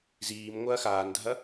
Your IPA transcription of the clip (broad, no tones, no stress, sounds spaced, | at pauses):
z iː m ŋʷ ɐː x aː n dʱ ɐ